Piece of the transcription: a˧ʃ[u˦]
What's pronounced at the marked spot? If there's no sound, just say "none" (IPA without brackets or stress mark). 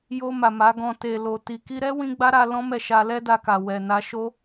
o˦